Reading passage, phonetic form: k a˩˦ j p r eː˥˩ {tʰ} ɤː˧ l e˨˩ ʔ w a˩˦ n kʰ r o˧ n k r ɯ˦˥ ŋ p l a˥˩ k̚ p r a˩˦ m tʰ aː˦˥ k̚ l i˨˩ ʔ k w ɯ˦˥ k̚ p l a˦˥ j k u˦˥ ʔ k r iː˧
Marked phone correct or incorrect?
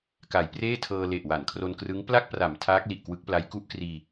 correct